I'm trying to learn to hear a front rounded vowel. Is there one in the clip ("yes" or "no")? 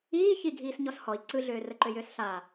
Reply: yes